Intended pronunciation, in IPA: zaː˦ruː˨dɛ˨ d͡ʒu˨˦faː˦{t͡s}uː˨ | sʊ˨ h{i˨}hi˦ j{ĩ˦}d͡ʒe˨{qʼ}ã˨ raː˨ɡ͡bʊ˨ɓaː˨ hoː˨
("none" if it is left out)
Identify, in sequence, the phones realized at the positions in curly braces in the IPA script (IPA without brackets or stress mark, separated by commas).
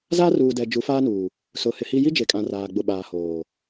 n, ɪ˨, i˦, kʼ